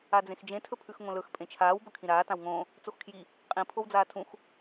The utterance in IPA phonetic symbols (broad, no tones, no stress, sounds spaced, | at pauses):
a d͡z ẽ x d͡ʒ ẽ tʰ ɵ pʰ ʉ x ŋ õ l ɵ x pʼ ẽ t͡ʃʰ aː w b ɵ kʰ ĩ ɾ aː t ã w ŋ õː | t͡s o x kʰ j i | qʼ ĩ pʰ o w d͡z aː tʰ ũ x